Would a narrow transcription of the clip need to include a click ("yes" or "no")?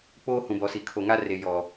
no